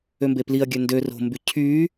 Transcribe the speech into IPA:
ømbepliɐ̯ɡʲø ndør o̤mby cʰy

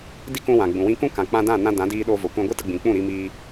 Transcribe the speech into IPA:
di˦kũ˧wã˨ ɡ͡bũ˨wĩ˦ kũ˦kã˨k͡pã˧ dã˦˨ nã˧dã˨˦diː˧ɗo˧ vo˨kʷã˧ɡʷɨ˦tə˧ ɡ͡bĩ˨k͡pũ˦˨ ɾi˧miː˧

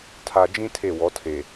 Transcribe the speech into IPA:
tʰa˨d͡ʒĩ˦ tʰe˦˨wɔ˨˦tʰe˨

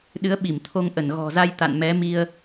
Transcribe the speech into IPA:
ɗɨ˨˦ə̯ɓi˧˩m t̪ʰo˧ŋ ʔə˧˩nɣɔ̤˨˩za˧jt̪a̰˧˨n mɛ˨˦mi˧ə̯

